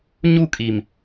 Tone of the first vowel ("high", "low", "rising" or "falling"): falling